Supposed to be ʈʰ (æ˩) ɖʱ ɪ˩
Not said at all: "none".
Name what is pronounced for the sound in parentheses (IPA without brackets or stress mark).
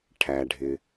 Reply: æ˩